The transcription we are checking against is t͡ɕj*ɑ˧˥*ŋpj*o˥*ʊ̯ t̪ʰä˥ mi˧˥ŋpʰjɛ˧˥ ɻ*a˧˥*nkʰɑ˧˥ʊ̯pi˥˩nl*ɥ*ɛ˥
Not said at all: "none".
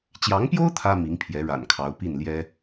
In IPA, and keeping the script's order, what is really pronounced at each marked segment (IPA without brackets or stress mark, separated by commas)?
ɑ˧˥, o˥, a̰˨˩, j